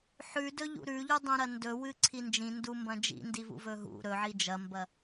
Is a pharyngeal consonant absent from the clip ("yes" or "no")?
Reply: no